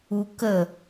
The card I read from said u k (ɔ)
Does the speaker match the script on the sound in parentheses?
no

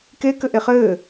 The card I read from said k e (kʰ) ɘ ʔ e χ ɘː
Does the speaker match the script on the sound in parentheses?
no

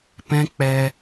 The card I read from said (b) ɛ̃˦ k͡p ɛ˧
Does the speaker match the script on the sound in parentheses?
no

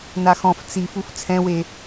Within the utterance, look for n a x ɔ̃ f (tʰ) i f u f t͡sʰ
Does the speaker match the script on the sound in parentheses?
no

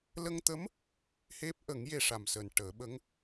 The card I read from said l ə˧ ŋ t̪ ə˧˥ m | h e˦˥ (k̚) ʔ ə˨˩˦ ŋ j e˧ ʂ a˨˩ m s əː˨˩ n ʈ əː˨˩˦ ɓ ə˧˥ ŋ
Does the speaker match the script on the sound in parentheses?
no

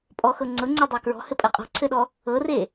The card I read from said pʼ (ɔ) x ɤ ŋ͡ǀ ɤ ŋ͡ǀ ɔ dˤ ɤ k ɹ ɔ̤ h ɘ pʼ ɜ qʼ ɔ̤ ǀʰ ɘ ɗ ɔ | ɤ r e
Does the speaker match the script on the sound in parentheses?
yes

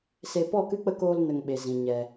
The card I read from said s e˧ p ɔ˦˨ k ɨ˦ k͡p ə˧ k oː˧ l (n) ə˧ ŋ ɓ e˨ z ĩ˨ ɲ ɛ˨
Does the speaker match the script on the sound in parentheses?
yes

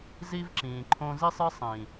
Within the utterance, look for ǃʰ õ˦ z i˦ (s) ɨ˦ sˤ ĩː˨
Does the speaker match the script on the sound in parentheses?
no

